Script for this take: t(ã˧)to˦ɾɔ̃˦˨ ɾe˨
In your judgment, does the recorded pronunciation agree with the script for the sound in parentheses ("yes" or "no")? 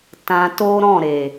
yes